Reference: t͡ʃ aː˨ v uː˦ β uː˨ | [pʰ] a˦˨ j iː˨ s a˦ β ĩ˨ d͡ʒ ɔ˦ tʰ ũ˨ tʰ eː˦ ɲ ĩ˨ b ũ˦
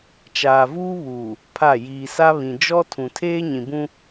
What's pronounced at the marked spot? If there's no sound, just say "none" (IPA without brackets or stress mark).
pʰ